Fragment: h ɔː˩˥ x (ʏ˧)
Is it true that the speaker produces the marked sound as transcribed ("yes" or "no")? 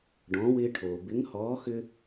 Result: yes